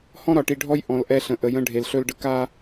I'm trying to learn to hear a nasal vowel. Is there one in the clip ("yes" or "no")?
yes